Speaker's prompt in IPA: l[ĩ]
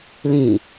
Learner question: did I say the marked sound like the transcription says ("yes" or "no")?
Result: yes